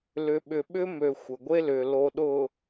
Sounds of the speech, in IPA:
l ʏ˨ ɓ ʏ˨ ɓ ʏ˦ m ø˨ xʷ ə˨ ɡʷ e˦ l ʏ˨ l o˨ ɗ ʊ˨

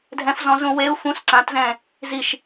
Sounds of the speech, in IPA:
dʱ ɛ̃ f z ɔ̃ z ũ w e u̯ f ũ s ǀ ã t z ɛ̃ | z i ʃ

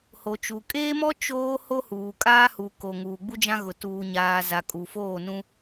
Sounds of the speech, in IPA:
h o˨ t͡ʃ u˨ kʼ eː˦ m ɔ˦ t͡ʃ oː˦ h o˦ h uː˨ kʼ aː˦ h u˨ k o˨ ŋ uː˨ ɡ͡b u˦ d͡ʒ ã˦ ɣ ʊ˨ t uː˨ ɲ aː˨ z a˨ kʼ u˨ f oː˦˨ n ũ˦

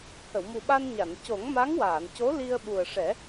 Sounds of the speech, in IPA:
h ə˨˩˨ w m u˨˩ ɓ a˧ n ɲ a˨˩˨ n c o˨˩˦ ŋ m a˧˥ ŋ w aː˨˩˨ n c o˧˥ l i˧ ə̯ ɓ u˨˩ ə̯ ʂ ɛ˨˩˦

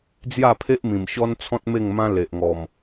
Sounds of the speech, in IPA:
d͡z j a˥˧ pʰ e˦ ʔ m ĩ˨˩ m ɕ ɔ˦ n t͡sʰ ɔ̃˦ t̚ m e˥˧ ŋ m ã˦ l e˨ ʔ ŋ ɔ˨˩ m

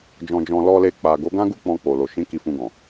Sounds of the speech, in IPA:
d͡ʒ ɔ̃˨ d͡ʒ ɔ̃˨ l ɔ˧ l e˧ k͡p a˨ ɡ o˨˦ ɡ ã˦ ɡ u˦ k͡p ɔ̃˧ k͡p o˨ l o˨ ʃ ĩ˨˦ k i˧ f ũ˧ ɡ ɔ̃˨

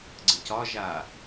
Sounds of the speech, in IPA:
ɡ͡ǀ ə c ɒ ʒ a

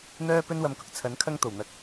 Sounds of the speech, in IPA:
n̪ œː˥ p ɵ˥ n w ɐ˧ m k ʊ˨ k̚ t͡sʰ ɐ˨˥ n kʰ ɐ˥ ŋ t̪ o˨˩ w n̪ ɐ˨˥ k̚

